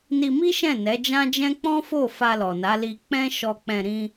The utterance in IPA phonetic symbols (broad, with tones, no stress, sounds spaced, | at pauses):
n i˧ m i˦ ʃ ɛ̃˦˨ n ɛ˨˦ d͡ʒ ã˦ d͡ʒ ɛ̃˦ k͡p ɔ̃˦ f o˦˨ f a˧ l ɔ˨ n a˨˦ l i˧ k͡p ɛ̃˦ ʃ ɔ˧ k͡p ɛ̃˧ ɾ ĩ˦